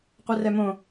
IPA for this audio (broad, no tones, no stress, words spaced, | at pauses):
qʷɛrɛmõ